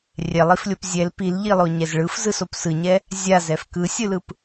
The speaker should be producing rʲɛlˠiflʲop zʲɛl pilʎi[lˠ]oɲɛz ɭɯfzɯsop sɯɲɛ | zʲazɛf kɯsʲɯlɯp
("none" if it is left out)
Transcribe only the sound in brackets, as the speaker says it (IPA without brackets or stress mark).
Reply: lˠ